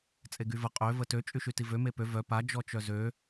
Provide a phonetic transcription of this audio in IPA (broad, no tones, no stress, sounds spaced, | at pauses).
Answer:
t͡sʼ e ɡ y v ə qʼ ø v ə t ø t͡ʃʼ y ʃ y t i v ø m e p ø v œ p a d͡ʒ ɔ t͡ʃ œ z ø